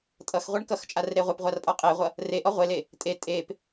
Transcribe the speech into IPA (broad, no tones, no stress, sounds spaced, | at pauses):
tʼ ʌ x ʁʷ e ɳ k ʌ x t͡ʃʼ a r ɾ e ʁʷ e p ʁʷ a r pʼ ɔ qʼ e ʁʷ ʌ | r e ʔ ɔ ʁʷ e l e | tʼ e tʼ e p